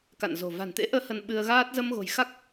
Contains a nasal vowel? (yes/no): no